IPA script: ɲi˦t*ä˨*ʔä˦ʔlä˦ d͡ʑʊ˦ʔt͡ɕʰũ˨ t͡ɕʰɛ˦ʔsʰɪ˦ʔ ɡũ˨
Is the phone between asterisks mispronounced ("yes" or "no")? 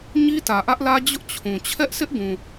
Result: no